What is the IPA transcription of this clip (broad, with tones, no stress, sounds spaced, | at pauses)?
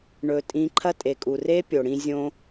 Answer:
ɳ ɵ˧ tʼ ĩ˧ ǃʰ ɐ˦ tʼ e˨ kʼ u˨ r e˦ pʲ o˨ ɽ ĩ˧ zʲ õ˦